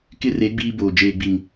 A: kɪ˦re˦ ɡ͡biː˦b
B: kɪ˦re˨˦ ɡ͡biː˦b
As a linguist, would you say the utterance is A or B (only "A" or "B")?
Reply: B